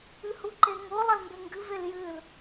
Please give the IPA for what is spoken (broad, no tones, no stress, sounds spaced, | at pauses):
ɨ h u ǃ e ŋ o lˠ ɐ l m b e ŋ ɡ ɨ v e l j ɨ l